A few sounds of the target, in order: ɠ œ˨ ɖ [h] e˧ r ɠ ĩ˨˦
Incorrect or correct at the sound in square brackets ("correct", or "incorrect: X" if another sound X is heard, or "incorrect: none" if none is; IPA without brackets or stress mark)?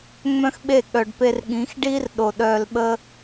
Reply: incorrect: p